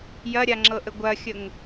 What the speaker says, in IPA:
jɐɾʲaŋ͡ǁɤʔə ɡʷɐxʲəŋ

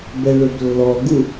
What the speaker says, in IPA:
bɛɭɵblːɔɡu

